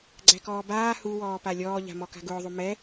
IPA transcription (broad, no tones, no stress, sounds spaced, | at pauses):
ɡ͡ǀ æ k ɔː b aː h u w ɔː p a lʲ ɔː ʎ a̤ m ɔ k a̤ ɡ ʊː ðˤ u m ɛ